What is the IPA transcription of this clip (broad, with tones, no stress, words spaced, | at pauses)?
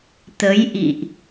t̪ə˨˦jʔḭ˧˨ʔ